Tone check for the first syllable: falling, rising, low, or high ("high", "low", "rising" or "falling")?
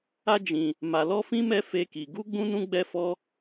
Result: high